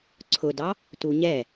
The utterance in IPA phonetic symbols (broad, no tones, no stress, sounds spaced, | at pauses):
ǀʰ ʊ d ɑ | t u ɲ ɛ